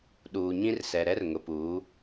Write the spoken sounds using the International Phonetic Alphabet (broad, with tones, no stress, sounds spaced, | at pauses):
ɗ uː˨ ɲ ĩ˦ r s ɛ˨ ɾ ɛ˦ r ŋ ʊ˨ p uː˨˦